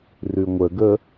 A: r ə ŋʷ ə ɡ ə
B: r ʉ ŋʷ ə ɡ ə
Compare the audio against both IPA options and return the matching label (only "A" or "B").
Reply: B